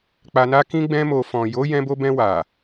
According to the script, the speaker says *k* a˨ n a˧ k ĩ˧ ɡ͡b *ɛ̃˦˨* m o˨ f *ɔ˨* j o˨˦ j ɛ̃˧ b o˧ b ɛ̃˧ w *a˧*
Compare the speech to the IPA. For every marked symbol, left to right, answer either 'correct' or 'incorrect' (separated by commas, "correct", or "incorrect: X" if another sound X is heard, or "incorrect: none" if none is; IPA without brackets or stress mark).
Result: incorrect: k͡p, incorrect: ɛ̃˧, incorrect: ɔ̃˨, incorrect: a˨